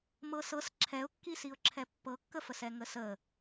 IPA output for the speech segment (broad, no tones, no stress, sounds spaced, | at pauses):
m ɤ s ɤ s ǁʰ ɛ ʊ̯ kː i s i ʊ̯ ǁʰ ɛ pː ɤ kː ə f ə s ɛ ŋ ə s ə